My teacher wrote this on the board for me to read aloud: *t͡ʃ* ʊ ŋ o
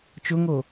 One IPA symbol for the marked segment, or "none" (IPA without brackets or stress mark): t͡ʃ